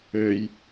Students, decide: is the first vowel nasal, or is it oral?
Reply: oral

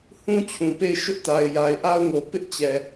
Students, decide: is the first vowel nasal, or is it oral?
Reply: nasal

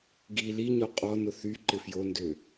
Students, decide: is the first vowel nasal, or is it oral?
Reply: oral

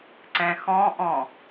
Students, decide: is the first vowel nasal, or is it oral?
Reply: nasal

